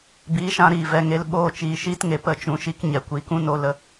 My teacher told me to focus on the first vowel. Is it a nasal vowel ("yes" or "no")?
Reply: no